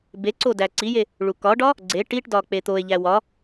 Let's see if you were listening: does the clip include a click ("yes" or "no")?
yes